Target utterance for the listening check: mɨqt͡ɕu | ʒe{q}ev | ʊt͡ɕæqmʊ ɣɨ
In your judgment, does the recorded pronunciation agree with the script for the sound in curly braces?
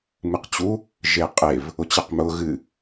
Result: no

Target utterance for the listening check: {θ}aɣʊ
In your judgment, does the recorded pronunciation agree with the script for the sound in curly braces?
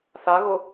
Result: yes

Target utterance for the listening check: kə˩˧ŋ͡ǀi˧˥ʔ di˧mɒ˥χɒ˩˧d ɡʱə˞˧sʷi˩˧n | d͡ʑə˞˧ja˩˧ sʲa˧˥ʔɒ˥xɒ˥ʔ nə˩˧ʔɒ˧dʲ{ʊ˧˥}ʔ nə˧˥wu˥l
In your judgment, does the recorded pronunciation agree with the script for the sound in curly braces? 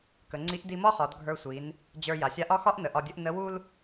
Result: no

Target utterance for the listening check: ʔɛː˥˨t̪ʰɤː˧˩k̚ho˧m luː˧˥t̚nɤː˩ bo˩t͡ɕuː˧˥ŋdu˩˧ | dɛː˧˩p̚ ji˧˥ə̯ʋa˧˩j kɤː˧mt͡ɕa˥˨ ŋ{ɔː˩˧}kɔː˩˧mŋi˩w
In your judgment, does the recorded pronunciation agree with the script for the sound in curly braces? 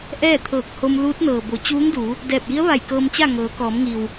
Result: no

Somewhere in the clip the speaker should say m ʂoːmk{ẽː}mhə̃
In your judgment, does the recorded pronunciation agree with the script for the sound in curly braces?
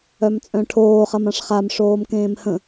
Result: yes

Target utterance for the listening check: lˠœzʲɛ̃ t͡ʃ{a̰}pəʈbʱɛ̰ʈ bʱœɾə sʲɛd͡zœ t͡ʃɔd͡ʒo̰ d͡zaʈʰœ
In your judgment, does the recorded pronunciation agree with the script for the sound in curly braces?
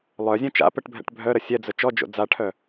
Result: yes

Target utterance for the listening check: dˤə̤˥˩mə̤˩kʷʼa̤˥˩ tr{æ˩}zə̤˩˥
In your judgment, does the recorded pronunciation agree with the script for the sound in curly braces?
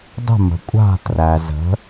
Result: yes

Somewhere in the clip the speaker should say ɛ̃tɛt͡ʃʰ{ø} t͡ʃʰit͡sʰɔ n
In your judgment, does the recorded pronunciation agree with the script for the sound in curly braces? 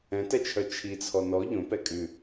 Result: no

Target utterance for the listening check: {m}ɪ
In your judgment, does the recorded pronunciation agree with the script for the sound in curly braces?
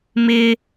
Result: yes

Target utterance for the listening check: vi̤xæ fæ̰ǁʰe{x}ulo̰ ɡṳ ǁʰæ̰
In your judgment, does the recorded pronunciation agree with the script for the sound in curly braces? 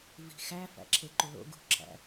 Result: no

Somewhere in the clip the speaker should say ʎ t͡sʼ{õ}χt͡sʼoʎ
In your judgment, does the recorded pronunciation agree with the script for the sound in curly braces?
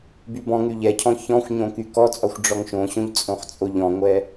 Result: yes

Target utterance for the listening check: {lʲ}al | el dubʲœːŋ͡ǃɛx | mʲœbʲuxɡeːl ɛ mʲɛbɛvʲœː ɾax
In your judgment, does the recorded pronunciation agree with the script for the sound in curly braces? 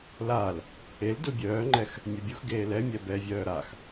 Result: no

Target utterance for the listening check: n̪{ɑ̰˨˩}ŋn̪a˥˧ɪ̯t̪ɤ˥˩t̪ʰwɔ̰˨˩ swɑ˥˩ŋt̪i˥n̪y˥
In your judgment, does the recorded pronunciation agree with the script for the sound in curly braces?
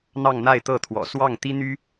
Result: no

